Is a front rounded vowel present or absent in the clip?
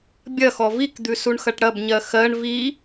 absent